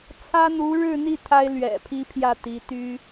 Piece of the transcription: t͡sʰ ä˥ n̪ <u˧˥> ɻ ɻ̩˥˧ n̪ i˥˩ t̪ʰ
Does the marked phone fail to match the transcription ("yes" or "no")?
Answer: no